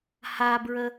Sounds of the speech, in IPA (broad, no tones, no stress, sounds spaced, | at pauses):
h a b ɹ ə